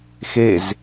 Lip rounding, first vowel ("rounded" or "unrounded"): unrounded